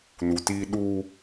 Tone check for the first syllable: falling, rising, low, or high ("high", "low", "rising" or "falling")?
low